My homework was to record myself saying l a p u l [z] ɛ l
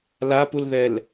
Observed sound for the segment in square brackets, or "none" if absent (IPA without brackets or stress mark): ð